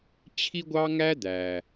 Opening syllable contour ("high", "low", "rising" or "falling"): high